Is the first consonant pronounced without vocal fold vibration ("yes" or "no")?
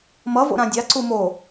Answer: no